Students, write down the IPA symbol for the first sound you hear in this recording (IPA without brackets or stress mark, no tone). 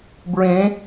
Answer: b